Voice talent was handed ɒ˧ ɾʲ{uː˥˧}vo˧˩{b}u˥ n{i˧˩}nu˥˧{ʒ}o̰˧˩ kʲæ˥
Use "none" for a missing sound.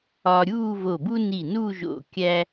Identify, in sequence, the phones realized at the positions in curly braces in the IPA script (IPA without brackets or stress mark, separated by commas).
uː˥˧, b, i˧˩, ʒ